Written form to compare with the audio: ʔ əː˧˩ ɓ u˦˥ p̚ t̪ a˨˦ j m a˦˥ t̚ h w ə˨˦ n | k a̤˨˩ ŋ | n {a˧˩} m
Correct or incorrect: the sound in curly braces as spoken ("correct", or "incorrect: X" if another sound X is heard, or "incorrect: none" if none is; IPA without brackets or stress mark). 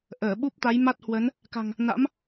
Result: incorrect: a̰˧˥